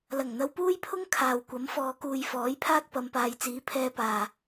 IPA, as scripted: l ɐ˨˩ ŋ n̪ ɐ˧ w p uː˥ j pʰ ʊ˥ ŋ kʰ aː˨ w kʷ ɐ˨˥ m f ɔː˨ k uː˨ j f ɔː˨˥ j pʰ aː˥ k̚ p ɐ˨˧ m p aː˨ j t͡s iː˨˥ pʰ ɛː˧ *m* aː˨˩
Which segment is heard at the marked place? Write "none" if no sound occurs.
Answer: p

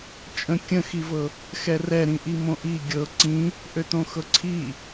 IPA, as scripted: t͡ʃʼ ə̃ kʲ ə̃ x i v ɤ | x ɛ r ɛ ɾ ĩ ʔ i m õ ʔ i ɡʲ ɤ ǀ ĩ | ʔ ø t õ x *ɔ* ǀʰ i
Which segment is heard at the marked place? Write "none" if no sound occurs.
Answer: ɤ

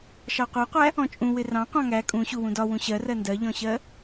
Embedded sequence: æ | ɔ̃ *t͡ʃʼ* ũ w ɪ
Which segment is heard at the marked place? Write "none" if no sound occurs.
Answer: t͡ʃʼ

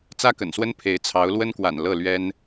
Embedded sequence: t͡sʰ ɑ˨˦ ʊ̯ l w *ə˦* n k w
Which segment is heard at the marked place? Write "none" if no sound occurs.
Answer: ə˦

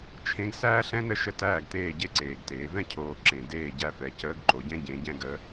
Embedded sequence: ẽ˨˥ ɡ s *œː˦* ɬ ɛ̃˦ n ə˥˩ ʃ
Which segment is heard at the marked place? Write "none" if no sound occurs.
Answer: æː˦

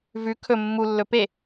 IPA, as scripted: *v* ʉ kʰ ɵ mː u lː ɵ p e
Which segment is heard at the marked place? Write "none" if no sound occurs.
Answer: v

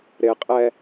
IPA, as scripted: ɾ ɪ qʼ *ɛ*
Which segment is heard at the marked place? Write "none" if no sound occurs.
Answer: ɛ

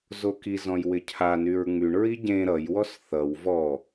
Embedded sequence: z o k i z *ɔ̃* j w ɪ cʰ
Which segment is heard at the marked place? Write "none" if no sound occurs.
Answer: ɔ̃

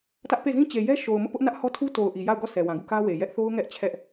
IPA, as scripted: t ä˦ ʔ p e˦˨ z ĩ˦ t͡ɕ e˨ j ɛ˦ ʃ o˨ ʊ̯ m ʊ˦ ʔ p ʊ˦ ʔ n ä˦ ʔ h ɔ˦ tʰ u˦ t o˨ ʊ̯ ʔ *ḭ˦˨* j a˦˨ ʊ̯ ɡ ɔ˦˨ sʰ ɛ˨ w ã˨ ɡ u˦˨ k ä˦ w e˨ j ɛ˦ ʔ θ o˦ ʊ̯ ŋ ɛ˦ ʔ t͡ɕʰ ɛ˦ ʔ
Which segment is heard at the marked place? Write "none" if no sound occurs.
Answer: i˨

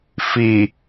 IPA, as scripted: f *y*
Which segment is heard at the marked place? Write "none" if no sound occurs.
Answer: i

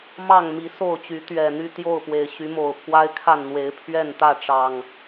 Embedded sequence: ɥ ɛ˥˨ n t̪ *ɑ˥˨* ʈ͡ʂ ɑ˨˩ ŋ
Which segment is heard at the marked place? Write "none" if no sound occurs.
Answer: ä˥˨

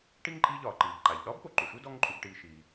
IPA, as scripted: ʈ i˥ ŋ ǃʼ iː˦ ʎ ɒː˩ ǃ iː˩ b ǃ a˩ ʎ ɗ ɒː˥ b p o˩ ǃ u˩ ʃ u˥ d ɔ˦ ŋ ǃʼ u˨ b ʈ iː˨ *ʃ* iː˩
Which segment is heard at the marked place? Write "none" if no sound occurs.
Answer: ʃ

